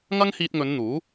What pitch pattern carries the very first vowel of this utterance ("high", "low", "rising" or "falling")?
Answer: high